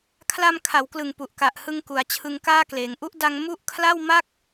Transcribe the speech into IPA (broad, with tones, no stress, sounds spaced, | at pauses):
kʰ l a˧ m kʰ a˩˦ w k l ɯ˨˩ ŋ p u˨˩ ʔ k a˨˩ ʔ h ɯ˧ ŋ k u˩˦ a̯ t͡ɕʰ ɯ˧ ŋ k aː˥˩ k l eː˩˦ ŋ ʔ u˦˥ ʔ d a˧ ŋ m u˥˩ ʔ kʰ l a˥˩ w m a˥˩ k̚